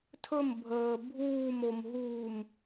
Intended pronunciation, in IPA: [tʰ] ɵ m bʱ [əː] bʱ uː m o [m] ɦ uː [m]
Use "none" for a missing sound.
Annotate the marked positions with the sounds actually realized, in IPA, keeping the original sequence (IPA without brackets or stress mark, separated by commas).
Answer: tʰ, əː, m, m